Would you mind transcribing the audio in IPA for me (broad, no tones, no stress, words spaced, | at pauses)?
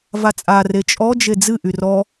vat͡sʼa ret͡ʃʼɔd͡ʒe d͡zɨ ʔyrɔ